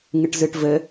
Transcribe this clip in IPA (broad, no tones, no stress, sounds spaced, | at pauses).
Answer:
ŋ ɨ ʈ z ɨ ʈ v ɘ